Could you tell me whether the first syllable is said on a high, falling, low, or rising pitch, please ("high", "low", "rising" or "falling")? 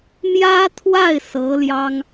high